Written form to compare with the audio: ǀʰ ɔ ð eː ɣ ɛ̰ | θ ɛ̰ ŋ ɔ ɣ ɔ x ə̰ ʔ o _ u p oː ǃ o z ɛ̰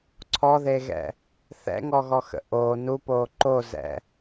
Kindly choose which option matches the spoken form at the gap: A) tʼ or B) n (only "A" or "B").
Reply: B